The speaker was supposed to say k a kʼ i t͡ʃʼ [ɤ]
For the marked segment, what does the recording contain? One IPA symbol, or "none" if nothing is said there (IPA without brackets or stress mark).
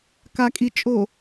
o